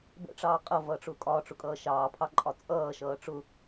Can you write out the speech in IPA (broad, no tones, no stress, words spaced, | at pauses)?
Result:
bə̰ʈ͡ʂɑː qʼʌvʌːʈ͡ʂʊː kʼɒːʈ͡ʂʊkʼʌː ʃɑːpʰɑǃʼɒ t͡sʼʌːʃʌː ʈ͡ʂʊ